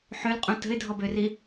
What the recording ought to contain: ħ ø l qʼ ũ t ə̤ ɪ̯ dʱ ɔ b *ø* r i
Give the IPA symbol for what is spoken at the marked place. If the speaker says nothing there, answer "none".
ø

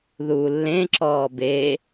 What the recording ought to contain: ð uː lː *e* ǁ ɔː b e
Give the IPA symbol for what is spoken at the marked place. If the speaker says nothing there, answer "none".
ẽ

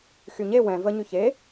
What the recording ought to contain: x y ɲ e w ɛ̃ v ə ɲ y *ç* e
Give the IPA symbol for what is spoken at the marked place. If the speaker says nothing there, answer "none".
ç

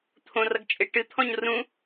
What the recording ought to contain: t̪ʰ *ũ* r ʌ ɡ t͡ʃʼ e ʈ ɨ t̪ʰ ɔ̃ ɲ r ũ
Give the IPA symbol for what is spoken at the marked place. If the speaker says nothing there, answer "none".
õ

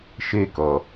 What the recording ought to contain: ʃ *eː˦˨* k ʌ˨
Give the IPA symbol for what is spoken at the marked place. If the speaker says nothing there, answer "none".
e˦˨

